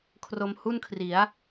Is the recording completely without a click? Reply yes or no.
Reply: yes